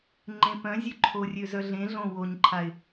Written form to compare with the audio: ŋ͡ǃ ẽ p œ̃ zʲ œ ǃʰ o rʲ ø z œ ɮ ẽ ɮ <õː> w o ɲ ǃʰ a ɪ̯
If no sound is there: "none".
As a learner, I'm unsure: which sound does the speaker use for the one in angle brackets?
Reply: õ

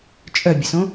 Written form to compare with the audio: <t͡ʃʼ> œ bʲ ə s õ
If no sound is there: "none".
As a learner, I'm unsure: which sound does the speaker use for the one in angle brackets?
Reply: t͡ʃʼ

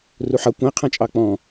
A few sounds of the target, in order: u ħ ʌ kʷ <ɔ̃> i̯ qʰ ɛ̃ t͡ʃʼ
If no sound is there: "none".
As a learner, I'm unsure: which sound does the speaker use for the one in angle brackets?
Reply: ə̃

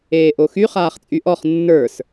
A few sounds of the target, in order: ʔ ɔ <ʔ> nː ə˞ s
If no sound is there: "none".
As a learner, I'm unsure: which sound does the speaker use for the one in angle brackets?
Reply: χ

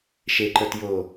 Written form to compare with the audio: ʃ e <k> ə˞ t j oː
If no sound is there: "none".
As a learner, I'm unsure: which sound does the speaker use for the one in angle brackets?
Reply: ǃ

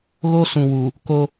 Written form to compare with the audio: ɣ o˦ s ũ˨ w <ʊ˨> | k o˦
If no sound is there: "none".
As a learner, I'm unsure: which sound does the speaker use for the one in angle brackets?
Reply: u˨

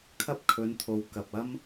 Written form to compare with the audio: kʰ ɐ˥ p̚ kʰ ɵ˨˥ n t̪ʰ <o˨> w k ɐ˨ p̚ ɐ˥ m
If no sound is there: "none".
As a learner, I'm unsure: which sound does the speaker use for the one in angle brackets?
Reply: o˨˥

